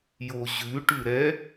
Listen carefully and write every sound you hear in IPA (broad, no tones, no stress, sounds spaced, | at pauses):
j o ʑ ʉ ʈ ʉ ɾ ɛ